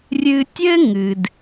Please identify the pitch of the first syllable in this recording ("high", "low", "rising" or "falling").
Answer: high